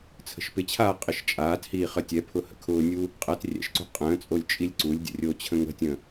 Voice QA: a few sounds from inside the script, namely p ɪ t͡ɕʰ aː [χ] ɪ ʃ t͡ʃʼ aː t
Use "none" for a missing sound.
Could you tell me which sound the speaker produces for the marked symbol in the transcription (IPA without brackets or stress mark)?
qʼ